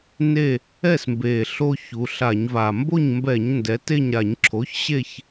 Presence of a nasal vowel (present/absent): absent